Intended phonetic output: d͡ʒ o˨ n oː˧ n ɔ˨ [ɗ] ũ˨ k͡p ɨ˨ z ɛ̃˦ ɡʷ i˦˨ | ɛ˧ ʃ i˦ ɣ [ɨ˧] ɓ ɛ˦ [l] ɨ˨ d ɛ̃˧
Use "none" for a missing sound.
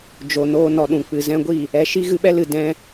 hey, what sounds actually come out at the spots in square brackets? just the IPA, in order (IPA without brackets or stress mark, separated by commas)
ɗ, ɨ˧, l